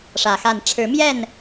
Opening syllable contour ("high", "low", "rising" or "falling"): low